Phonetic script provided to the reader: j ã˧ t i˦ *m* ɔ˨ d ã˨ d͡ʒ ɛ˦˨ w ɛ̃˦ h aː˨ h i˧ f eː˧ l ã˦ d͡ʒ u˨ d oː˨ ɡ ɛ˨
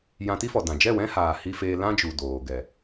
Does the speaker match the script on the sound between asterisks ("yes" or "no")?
no